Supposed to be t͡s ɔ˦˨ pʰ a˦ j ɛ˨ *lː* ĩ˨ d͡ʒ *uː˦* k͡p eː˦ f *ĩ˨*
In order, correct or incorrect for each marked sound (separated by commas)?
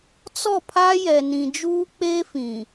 incorrect, correct, correct